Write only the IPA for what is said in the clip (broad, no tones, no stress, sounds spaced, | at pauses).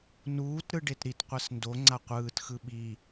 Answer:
n uː t ɾ ɯ ɖ e t ɾ i t qʷ ɛ s n d o ŋ͡ǀ a qʷ ɯː t x ɯ ɓ i